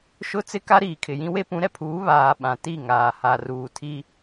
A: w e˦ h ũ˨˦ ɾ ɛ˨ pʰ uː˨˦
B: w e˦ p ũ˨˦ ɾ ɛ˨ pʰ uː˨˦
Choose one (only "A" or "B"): B